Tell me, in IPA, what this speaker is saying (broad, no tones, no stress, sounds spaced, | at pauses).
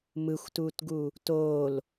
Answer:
m ɯ xʷ t uː t ɡ u | t oː l